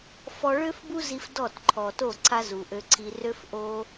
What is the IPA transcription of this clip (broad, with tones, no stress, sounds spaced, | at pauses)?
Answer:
f ɔ˧ ɭ ø˦ f b u˦ z i˧ f d ɔ˦˨ t ǃʰ ɔ˨ t o˦˨ ǀʰ a˦ z u˨ ʔ ø˧ ǀʰ i˧ r ø˦ f ʔ o˦